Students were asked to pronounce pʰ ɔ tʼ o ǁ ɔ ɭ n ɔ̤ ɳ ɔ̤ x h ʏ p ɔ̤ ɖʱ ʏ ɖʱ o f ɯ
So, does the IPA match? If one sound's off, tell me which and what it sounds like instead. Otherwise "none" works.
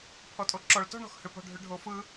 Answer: n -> t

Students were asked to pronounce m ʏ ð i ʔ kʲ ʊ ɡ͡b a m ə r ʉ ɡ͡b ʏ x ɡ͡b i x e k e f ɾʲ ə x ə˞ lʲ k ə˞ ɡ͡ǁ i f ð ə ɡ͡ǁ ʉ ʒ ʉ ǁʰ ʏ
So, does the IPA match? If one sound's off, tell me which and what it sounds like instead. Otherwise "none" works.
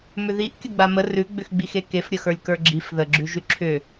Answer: none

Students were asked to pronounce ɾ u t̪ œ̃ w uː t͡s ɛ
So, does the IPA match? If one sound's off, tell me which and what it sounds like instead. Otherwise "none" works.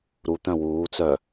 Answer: ɛ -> œ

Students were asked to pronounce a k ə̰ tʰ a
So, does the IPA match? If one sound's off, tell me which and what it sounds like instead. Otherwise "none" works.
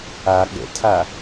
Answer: k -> ɠ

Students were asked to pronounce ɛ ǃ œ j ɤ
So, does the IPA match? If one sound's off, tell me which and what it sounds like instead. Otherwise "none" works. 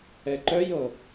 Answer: none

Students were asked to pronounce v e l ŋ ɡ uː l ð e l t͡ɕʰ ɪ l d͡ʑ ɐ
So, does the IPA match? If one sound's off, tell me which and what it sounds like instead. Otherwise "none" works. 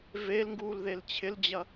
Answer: none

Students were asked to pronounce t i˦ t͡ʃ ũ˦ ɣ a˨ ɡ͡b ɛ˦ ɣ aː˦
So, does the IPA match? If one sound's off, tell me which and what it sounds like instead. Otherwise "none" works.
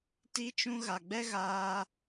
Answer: none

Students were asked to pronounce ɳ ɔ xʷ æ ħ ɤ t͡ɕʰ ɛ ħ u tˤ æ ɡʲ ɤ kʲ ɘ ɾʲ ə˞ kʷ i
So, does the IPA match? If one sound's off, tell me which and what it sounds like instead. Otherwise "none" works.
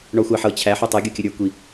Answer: ɛ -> æ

